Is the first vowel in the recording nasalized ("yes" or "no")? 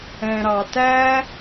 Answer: yes